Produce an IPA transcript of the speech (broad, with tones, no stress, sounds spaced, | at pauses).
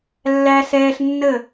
lː æ˧ s ɛː˧ ɬ nː ə˦˨